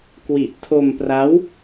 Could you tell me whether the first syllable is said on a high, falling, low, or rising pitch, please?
low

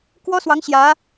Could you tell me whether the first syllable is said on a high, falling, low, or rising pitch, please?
high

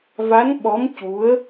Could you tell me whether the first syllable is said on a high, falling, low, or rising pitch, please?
rising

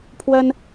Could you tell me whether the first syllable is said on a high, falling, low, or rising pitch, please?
high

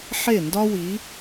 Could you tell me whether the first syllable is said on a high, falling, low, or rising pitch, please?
falling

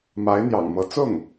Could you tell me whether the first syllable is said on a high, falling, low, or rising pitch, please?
rising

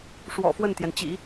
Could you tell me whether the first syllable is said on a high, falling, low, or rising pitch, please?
low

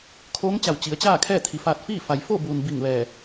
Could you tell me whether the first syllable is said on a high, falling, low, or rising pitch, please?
rising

